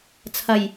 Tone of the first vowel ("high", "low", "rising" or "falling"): low